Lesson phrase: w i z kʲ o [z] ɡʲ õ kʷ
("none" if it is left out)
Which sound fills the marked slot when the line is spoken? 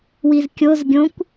z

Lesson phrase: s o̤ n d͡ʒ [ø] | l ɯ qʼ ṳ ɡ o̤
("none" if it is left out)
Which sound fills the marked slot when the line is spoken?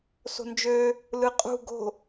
ø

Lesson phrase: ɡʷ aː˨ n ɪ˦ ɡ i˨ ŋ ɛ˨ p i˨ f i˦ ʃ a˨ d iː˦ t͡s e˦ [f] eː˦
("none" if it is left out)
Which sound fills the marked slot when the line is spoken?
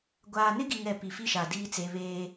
β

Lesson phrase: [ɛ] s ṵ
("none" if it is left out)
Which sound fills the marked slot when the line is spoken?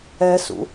ɛ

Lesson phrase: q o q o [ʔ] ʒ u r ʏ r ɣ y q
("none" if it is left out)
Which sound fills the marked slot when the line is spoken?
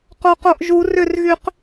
ʔ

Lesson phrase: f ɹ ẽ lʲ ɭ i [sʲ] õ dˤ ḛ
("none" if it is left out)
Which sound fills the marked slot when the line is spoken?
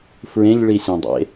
sʲ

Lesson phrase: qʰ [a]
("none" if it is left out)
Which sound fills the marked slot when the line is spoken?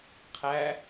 æ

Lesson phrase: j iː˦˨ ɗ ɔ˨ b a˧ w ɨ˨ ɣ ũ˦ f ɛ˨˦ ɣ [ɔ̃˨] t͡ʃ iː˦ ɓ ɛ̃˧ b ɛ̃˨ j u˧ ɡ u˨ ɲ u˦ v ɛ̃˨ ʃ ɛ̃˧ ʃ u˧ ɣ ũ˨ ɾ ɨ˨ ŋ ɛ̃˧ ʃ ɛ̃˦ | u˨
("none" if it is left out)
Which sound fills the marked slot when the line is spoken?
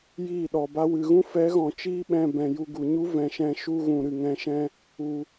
ɔ̃˨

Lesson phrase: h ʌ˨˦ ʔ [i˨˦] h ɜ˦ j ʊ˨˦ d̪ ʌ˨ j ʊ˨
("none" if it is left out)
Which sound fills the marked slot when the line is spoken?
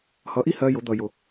i˦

